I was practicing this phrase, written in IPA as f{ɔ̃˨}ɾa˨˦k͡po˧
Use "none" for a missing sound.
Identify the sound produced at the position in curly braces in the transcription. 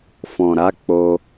ɔ̃˨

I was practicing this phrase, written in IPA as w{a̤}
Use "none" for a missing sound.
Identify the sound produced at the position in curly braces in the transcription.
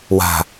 a̤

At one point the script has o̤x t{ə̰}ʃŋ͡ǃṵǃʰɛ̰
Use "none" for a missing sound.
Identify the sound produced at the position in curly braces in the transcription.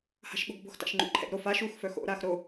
a̰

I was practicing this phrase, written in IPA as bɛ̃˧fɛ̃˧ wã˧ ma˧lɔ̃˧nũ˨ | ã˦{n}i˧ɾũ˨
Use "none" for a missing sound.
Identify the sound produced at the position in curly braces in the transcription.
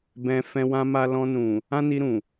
n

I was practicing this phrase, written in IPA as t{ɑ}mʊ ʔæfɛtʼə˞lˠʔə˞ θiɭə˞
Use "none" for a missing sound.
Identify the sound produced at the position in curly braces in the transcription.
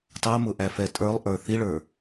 ɑ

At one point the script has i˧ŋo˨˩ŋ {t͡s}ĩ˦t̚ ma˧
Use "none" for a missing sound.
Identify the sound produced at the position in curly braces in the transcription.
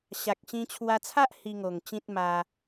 t͡ɕ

